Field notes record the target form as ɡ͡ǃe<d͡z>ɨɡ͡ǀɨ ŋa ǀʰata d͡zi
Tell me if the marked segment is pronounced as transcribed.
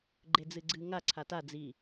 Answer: yes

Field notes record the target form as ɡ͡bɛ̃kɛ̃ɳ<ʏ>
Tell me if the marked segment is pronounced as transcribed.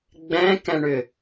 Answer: yes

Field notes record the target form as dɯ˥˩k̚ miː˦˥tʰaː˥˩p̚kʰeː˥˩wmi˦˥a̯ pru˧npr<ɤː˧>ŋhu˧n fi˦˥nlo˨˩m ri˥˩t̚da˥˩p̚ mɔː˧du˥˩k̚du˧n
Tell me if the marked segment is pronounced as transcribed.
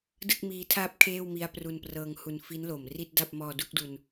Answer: yes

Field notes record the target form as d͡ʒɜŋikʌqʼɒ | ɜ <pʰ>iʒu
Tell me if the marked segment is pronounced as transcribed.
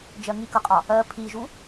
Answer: yes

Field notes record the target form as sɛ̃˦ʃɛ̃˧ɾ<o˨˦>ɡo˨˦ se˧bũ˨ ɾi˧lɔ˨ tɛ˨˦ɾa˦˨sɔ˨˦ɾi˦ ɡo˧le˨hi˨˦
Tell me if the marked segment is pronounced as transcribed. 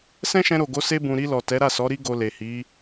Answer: no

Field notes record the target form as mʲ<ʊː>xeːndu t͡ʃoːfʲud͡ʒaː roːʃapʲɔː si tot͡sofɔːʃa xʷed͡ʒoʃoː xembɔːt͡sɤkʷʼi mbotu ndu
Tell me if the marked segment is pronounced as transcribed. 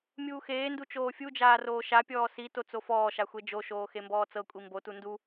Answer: no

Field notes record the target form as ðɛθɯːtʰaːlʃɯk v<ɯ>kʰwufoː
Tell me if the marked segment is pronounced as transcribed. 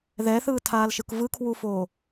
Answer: yes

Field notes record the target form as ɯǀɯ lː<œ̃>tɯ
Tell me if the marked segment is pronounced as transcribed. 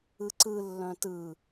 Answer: yes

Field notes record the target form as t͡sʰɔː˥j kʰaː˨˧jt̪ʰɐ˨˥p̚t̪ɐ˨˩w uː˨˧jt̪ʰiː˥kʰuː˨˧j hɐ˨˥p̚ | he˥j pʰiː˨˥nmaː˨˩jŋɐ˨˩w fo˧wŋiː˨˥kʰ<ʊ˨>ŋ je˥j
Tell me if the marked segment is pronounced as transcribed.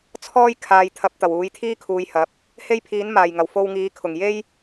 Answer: no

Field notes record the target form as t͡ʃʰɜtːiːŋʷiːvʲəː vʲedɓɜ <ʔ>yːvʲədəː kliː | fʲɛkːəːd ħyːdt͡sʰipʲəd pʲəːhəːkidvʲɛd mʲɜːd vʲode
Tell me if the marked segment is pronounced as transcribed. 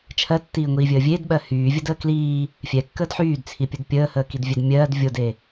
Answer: no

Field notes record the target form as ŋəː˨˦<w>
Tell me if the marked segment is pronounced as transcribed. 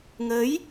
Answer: no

